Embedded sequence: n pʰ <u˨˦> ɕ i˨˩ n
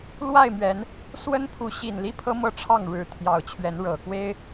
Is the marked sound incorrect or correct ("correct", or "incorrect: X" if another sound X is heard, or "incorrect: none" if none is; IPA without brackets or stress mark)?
correct